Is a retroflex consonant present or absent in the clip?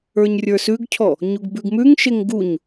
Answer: absent